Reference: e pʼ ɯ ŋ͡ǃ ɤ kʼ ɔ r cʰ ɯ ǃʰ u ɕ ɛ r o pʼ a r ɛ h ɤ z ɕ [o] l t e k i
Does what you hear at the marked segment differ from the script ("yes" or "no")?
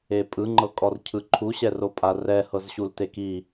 yes